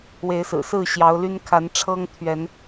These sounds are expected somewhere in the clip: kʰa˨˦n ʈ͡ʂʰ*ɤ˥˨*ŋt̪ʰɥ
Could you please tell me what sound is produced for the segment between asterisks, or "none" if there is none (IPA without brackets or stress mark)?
ɤ˦